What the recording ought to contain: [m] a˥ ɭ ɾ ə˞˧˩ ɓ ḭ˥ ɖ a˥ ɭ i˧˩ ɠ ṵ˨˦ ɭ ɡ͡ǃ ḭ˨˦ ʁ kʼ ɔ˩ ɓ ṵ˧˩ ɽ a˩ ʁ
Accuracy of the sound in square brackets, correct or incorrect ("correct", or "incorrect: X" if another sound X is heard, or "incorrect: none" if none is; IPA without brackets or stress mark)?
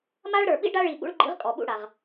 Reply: correct